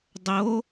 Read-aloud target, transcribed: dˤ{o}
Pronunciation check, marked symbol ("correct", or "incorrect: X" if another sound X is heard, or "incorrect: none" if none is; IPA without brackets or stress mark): correct